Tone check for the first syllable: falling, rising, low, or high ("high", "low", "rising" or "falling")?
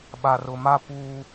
low